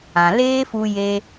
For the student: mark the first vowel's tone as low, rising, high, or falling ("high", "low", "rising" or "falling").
low